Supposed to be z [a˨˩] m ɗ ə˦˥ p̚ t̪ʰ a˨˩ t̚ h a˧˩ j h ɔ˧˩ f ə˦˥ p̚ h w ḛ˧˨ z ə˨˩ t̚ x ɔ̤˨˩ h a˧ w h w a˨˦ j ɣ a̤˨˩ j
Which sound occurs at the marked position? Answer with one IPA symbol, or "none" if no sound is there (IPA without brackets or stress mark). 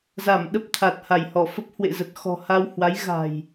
a˧˩